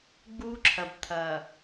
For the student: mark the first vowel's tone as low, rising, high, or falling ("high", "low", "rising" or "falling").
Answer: high